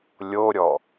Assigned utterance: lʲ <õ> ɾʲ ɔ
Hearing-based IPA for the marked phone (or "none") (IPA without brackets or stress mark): o